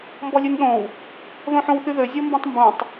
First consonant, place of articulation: labial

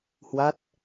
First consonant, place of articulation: glottal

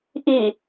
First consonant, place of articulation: glottal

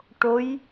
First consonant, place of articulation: retroflex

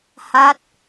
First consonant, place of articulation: glottal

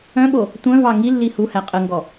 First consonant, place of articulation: labial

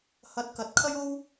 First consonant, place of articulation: glottal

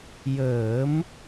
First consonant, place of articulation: palatal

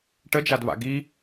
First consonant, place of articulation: retroflex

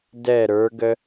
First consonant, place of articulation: alveolar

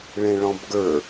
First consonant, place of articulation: retroflex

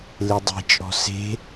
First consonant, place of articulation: alveolar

